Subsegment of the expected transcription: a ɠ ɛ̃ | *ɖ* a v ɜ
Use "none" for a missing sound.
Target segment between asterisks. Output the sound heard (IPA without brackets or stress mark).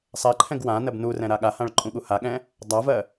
dˤ